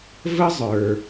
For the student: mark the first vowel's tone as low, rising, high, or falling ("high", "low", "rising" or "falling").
high